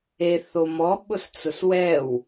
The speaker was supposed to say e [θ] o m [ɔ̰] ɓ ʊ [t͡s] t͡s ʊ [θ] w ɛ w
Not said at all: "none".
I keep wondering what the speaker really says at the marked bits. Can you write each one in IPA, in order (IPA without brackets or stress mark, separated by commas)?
θ, ɔ, s, s